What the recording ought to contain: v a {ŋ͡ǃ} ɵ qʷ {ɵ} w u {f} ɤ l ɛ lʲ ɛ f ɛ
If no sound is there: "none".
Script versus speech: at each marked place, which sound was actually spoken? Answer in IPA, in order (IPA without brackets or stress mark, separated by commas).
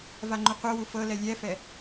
ŋ͡ǃ, ɤ, f